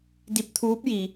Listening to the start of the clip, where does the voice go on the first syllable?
rising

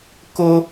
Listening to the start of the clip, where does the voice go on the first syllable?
high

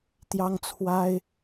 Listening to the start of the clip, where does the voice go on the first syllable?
high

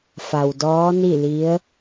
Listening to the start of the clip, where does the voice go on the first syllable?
low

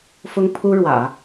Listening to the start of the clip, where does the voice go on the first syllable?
high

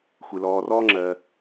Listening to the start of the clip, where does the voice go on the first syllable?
low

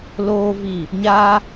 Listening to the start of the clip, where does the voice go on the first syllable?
high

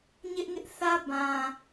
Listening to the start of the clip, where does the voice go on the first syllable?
high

